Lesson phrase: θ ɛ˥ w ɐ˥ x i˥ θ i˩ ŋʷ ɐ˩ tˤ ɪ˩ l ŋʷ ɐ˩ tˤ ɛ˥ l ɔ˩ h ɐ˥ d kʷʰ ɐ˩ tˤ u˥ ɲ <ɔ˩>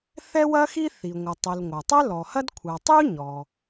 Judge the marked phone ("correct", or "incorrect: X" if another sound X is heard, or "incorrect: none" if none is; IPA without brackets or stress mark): correct